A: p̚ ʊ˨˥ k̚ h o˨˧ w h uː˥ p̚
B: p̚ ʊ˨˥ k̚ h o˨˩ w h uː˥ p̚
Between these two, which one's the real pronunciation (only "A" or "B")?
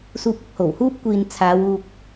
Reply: B